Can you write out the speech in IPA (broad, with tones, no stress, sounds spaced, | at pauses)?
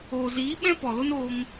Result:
oː˨ z iː˨˦ ɓ ɛ̃˦ p ɔ˨ l o˦ n oː˧ ŋ